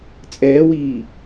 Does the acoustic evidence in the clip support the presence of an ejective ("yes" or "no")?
yes